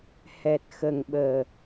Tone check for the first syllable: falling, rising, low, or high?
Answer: low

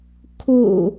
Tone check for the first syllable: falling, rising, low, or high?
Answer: low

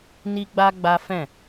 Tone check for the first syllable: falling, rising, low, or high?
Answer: high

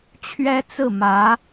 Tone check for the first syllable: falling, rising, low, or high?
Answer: high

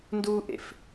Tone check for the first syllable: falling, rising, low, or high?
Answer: high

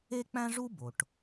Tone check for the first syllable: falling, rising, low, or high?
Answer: high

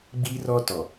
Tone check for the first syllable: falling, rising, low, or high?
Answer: high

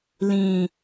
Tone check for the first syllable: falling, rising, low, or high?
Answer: falling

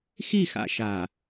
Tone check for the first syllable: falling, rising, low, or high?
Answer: falling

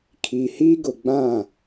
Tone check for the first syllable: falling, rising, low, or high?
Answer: low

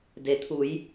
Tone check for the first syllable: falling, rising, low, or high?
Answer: low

